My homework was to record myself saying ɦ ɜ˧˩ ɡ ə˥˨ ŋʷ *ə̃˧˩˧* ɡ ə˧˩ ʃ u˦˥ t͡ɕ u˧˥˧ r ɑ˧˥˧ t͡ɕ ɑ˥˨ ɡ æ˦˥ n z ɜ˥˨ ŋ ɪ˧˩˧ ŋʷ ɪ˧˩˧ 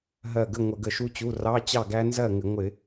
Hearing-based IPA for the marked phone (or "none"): ə˧˩˧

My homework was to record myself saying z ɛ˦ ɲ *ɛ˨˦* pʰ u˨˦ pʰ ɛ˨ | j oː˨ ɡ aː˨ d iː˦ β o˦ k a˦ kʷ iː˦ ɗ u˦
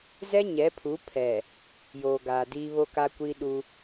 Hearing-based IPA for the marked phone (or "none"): ɛ˨˦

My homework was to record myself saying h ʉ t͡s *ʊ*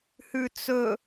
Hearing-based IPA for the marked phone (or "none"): ɵ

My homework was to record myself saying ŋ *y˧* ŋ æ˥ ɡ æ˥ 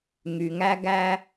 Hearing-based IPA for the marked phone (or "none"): y˧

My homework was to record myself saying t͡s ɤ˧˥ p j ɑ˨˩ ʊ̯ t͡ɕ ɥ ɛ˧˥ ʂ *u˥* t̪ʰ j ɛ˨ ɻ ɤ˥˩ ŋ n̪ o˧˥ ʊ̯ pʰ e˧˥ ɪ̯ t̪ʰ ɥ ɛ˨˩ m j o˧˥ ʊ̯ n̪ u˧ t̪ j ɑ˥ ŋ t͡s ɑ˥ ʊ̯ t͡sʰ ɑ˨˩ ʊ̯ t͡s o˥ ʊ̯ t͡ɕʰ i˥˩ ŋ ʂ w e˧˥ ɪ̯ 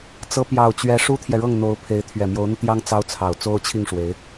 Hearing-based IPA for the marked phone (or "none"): u˥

